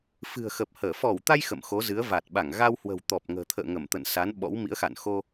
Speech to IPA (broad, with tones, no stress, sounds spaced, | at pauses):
f ɨ̤˨˩ ə̯ x əː˨˩ p̚ h əː˧˩ f ɔ˧˩ w t̪ a˧ j x ə̰˧˨ m x o˨˦ z ɨ˨˦ ə̯ v a˨˩ t̚ ɓ a˧˩ ŋ ɣ a˧ w h w ə̤˨˩ w t̪ ɔ˨˩ p̚ ŋ ə̤ː˨˩ t̪ʰ ə̰ː˧˨ ŋ ə˧˩ m t̪ ə̰˧˨ n s a˨˦ n ɓ ɔ̰˧˥ w m ḭ˧˥ ə̯ x a̰˧˨ n x o˧